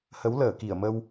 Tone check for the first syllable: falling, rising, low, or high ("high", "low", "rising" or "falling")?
rising